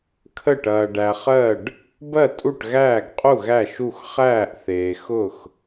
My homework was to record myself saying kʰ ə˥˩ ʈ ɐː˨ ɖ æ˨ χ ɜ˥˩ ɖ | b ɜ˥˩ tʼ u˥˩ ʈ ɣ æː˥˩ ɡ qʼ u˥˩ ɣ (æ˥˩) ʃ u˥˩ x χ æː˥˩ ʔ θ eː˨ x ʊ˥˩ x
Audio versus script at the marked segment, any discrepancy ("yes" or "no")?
no